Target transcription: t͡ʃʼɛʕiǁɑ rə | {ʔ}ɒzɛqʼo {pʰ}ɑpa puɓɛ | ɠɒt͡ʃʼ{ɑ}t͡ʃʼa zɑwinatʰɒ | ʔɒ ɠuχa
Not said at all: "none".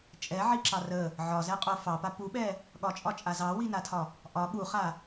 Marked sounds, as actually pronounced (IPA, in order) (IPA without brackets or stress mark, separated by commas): ʕ, f, ɒ